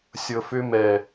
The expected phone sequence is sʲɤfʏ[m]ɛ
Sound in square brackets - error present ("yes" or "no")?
no